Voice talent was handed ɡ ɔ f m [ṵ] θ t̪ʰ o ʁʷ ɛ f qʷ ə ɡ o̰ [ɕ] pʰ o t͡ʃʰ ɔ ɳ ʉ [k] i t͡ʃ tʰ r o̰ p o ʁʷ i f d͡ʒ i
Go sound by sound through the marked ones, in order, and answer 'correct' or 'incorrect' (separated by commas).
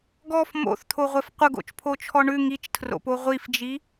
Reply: incorrect, incorrect, incorrect